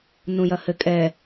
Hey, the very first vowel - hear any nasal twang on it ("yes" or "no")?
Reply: yes